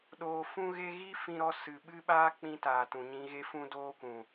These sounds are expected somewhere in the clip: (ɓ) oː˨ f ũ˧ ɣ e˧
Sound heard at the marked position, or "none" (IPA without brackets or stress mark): ɗ